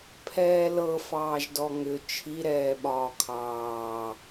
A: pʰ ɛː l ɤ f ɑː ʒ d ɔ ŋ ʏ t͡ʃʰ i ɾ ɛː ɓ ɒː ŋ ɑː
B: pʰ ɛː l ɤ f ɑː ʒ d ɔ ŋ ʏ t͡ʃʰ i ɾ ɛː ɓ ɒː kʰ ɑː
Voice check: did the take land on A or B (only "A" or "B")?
B